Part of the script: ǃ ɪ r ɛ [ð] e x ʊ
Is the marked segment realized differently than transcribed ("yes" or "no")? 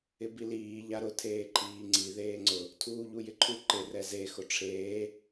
yes